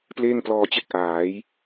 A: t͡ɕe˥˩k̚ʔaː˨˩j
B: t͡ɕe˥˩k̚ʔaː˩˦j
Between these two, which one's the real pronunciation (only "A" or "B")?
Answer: B